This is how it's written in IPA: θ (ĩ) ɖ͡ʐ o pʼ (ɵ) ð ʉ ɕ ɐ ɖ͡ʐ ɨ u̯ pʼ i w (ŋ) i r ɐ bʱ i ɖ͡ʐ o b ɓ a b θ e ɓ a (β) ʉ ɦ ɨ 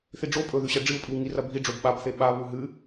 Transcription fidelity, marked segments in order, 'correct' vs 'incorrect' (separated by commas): incorrect, correct, correct, correct